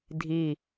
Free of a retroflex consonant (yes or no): yes